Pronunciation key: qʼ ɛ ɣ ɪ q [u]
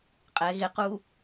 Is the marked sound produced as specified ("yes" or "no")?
yes